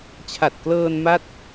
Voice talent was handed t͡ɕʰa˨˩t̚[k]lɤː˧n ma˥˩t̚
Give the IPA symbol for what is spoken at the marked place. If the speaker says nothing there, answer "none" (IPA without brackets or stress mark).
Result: k